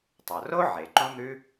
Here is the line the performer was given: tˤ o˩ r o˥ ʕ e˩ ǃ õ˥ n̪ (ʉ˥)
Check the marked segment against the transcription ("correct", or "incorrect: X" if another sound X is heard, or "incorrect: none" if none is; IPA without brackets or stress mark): correct